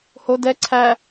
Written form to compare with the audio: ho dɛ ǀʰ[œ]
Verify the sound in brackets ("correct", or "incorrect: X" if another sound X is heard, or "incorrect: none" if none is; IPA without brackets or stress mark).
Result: incorrect: æ